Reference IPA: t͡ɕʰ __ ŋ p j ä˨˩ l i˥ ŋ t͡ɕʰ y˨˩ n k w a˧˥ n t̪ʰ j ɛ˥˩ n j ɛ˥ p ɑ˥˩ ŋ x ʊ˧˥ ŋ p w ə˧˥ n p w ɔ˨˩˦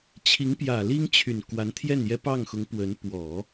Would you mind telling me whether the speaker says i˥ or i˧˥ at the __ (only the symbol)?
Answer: i˧˥